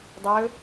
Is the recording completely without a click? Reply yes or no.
yes